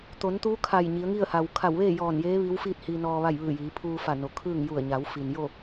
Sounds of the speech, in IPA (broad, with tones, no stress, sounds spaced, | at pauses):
t̪ o˩˧ n t̪ u˧˥ kʰ a˧˩ j ɲ i˩˧ ə̯ ŋ i˥˨ ə̯ h a˩ w kʰ a˧˩ w ʋ eː˥˨ j ɔː˧˩ n j eː˧˥ ʋ i˧˥ w f iː˥˨ t̚ h iː˧ n ɔː˧ ʋ a˥˨ j ʋ ɯː˧˩ j iː˩˧ pʰ uː˧ f a˧˩ n o˩ kʰ ɯː˥˨ ŋ j u˧˩ ə̯ ɲ a˩˧ w f i˩ n j o˥˨